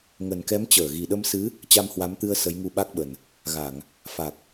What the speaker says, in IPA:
ŋ ə˨˩ n k ɛ˨˦ m t͡ɕ əː˧˩ ɣ i˨˩ ɗ ə˧ m s ɨ˨˦ | t͡ɕ a˧ m h w a˨˦ m t̪ ɨ˧ ə̯ s ə˨˦ j ŋ u˧ ɓ a˦˥ k̚ ɓ ə˨˩ n | ɣ a˧˩˨ ŋ | f a˨˩ k̚

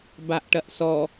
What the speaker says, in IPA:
b a ʔ ʈ ɐ ʔ s ɔ

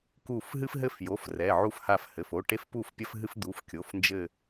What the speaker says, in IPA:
k u˦˨ f ɦ ɨ˦ f ɦ ɘ˦ f j o˩˧˩ f r ɛ˩˧˩ ʕ u˦ f h a˦˨ f h ɘ˩˧˩ f o˩˧˩ ʈ e˦ f p u˦˨ f pʲ ɐ˦ f ɦ ɨ˦ f d̪ u˩˧˩ f kʲ o˩˧˩ f n d͡ʒ ɘ˦˨

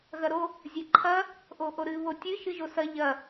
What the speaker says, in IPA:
ɣ ɐ ɾ o | zʲ ɛ ǃʰ ɐ | ʔ o ʔ o ɾ ɨ β o tʲ ɨ ʃ ɨ ʒ o s ɐ ʎ ɐ

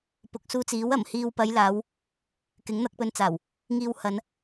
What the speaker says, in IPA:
p ʊ˨ k̚ s uː˧ t͡s iː˨˥ w ɐ˨˩ m h iː˨ w p ɐ˨˧ j l aː˨˧ w | k ɪ˨˥ ŋ n̪ ɐ˧ k̚ p ɵ˧ n t͡s aː˨˩ w | ŋ iː˨ w h ɐ˨˧ n

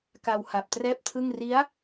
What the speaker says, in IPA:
k a˧ w h a˨˩ p̚ t r ɛː˥˩ p̚ tʰ ɯ˥˩ ŋ r i˦˥ a̯

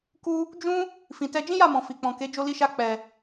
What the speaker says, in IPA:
k u˧ | d͡ʒ ũ˦ | f ĩ˨ t ɛ˧ d͡ʒ ĩ˦ j a˦˨ m ɔ̃˨ f i˨ k͡p ɔ̃˨ k e˨˦ d͡ʒ o˧ l i˧ ʃ a˧ k͡p ɛ˨

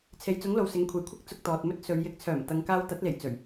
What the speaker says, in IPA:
t͡sʰ e˨ j t͡s ʊ˨˥ ŋ l o˨ w s ɪ˨˥ ŋ kʷʰ e˨ j kʷʰ ɪ˥ k̚ t͡s ʊ˧ k̚ t̪ ɔː˨ t̚ m ɵ˥ t̚ s ɵ˨˧ ɥ j ɪ˨˥ k̚ t͡sʰ œː˨˩ m t̪ ɐ˨ ŋ k aː˧ w t̪ ɐ˨˥ t̚ l e˨˩ j t͡s ɵ˨˩ ɥ

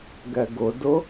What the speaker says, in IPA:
ɡ ɛ ɡ ʊ d ʊ

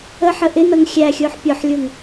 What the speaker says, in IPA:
ə ħ ə ʔ ɪ n ʌ ŋ xʲ æ xʲ ʊː ħ pʲ ɔ ħ lʲ ʊː ŋ

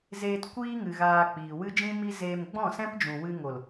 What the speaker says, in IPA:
z e˧ t kʷ iː˦ ŋ ɨ˨ ɣ aː˧ k͡p iː˨ w ɨ˦ d͡ʒ ĩ˦ m i˦ z eː˧ m ɡ͡b ɔ̃˦˨ s ɛ̃˦ p d͡ʒ ũ˨ w ɨ˧ ŋ o˨ l

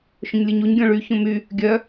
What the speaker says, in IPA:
ʃ õ ɲ lʲ ɯ ɲ u ɲ ɡʲ ɔ̃ ɭ y ç õ m y | ɡʲ œ

